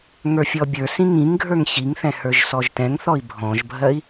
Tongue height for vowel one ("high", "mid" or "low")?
mid